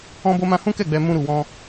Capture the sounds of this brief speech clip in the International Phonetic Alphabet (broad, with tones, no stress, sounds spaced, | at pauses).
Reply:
ɔ̃˦ b o˦ m ã˦ h ũ˦ k ɛ˦˨ ɡ͡b ɛ˧ m ũ˦ ɾ u˧ w ɔ̃˦